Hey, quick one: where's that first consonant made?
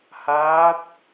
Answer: throat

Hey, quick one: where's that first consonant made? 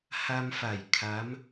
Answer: throat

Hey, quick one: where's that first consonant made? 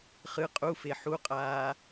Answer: uvula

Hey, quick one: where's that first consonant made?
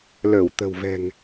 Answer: tongue tip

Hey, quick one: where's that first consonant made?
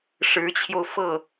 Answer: retroflex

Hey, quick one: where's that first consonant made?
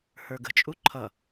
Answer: throat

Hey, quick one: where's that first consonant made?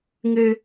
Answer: velum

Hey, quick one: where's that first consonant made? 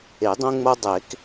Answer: tongue tip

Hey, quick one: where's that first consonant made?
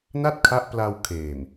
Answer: tongue tip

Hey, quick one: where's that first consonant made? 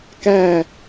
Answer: velum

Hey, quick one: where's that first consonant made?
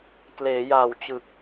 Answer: velum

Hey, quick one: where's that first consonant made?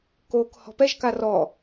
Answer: velum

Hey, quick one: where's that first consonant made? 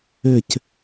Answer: palate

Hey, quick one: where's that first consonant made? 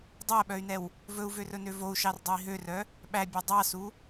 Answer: tongue tip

